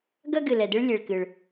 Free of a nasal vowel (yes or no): yes